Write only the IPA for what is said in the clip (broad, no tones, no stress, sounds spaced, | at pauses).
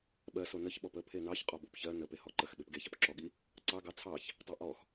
ɓ ɜ s o n ə ç ɓ ɔ p ə pʰ e n ɑ ç qʼ ɔ b o p ç ɜ n ə p e h ɔ ǃ ə x ɓ e p ɡ e ç ɑ p ǁ ɔ ɠ i | ǀ ɑ ɡ ɑ t͡sʰ ɑ ç | tˤ e ʔ ɔ x